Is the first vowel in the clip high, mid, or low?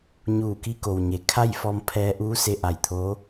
high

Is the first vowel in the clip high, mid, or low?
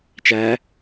low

